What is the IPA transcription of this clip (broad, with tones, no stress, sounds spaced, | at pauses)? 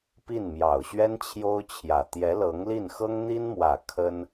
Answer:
p i˥˩ n m j ɑ˨˩ ʊ̯ ɕ ɥ ɛ˥ n t͡ɕʰ j o˥ ʊ̯ t͡ɕʰ j ä˨˩ t̪ j ɛ˧˥ l ɤ˧˥ ŋ l i˥˩ n x ɤ˥ ŋ n̪ i˥ n m w ä˨˩ kʰ ə˥ n